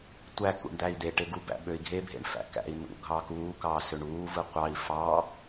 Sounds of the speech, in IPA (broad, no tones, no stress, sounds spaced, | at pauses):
tʷ æ k ṵ ɳ d̪ æ i̯ d̪ e ʈ e ɡ u b æ̰ ɓ ø i̯ ɡʱ e bʱ ḛ ɳ f æ̰ k æ̰ i̯ n ṵ ɡʱ ɑ k uː k ɑː s ø ɳ uː v ɯ qʷ ɑ i̯ f ɑ